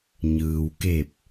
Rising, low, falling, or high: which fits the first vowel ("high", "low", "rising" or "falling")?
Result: low